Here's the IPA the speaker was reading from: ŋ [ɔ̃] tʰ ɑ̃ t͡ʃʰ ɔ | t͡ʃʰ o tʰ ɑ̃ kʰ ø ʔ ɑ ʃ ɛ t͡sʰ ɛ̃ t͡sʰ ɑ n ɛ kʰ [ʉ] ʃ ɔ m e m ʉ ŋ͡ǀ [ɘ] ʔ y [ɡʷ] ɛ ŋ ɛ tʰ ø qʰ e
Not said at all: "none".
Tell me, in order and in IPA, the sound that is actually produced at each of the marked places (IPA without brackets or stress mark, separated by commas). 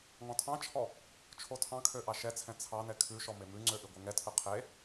ɔ̃, ʉ, ø, ɡʷ